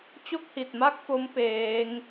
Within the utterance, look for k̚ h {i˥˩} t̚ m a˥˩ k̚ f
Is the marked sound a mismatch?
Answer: yes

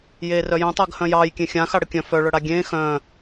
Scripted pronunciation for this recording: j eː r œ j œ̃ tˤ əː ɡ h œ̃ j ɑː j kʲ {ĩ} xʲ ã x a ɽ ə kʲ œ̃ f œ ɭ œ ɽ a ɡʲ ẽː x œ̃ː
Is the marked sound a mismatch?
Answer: yes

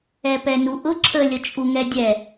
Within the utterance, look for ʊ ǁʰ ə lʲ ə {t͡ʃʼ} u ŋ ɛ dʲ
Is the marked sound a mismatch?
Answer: no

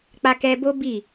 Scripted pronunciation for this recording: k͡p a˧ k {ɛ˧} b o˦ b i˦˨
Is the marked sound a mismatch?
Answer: no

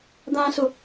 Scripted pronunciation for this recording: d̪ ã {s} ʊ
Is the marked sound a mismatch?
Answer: no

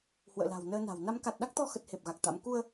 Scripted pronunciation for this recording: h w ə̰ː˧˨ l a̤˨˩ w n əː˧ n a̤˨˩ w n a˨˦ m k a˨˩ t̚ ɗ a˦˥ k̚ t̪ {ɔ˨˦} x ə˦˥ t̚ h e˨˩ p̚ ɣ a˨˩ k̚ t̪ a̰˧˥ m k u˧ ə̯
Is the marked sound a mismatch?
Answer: yes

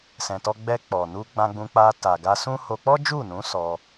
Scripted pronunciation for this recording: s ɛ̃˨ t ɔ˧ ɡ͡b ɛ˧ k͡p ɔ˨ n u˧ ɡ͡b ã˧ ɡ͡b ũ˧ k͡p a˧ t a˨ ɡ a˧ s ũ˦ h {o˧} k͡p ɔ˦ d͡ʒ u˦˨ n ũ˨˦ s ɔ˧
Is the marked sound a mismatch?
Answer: no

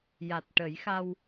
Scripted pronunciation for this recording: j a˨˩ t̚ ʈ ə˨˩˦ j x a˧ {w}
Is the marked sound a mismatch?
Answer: no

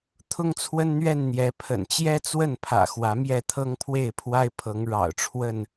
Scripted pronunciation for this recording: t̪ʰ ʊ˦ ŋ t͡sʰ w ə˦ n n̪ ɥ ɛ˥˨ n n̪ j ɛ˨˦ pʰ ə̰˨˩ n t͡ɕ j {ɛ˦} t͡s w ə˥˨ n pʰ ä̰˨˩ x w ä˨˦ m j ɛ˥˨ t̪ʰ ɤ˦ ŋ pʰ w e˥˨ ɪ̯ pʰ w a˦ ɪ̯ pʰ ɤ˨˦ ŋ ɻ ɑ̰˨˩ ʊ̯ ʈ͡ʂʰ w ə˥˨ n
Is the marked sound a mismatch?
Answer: no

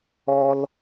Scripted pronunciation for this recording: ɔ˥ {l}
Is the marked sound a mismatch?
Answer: no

